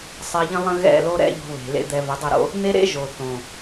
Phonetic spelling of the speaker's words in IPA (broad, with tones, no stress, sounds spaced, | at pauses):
sˤ e˧ ʎ ə̃˦ lˠ ə̃˦ ɣ ɛ̰˦˨ l o˦ ɾ ɛ̰˦ ʎ o̤˧ β e̤˨ l ḛ˦ d̪ ɛ˧ v ə˨˦ dˤ ə˦˨ ɾ o̰˦ | n̪ e˦ ɾ ḛ˦ ʒ o˨ θ õ˨